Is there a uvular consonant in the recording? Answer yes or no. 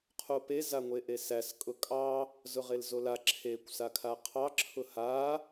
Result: yes